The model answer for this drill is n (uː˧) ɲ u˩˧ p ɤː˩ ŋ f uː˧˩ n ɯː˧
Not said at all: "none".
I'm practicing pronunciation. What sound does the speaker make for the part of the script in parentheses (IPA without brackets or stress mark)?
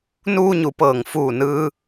uː˧